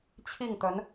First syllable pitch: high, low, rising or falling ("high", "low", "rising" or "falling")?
falling